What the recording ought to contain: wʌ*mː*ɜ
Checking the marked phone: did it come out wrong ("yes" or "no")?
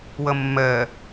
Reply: no